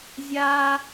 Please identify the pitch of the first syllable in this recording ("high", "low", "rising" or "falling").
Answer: high